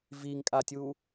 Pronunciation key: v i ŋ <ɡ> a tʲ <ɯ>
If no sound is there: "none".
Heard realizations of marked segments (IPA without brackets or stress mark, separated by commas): kʼ, u